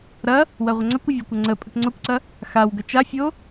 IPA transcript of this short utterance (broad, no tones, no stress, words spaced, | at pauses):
ɾɐ | wɐʁʷɐŋ͡ǀɐkʷə vʲəkʷɐ ŋ͡ǀə pʼəkŋ͡ǀokʷǀɐ | xawɡə t͡ʃafʲo